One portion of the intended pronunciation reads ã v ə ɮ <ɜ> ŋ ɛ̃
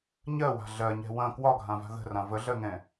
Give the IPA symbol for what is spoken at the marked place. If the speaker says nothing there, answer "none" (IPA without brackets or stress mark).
ɜ